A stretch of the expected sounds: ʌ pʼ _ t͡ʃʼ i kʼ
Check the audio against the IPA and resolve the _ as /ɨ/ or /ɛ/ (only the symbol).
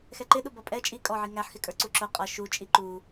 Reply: ɛ